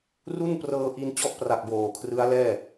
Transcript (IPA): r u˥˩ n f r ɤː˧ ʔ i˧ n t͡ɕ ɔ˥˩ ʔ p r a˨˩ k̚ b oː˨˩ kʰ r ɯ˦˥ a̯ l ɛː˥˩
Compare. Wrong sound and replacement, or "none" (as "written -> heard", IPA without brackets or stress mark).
f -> p